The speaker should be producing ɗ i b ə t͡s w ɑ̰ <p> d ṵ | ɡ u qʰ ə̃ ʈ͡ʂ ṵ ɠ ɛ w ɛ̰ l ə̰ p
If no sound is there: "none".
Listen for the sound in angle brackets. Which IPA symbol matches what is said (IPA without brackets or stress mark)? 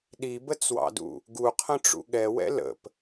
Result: none